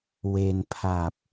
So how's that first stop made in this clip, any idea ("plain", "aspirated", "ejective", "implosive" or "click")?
aspirated